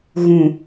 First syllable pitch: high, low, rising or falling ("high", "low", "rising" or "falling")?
low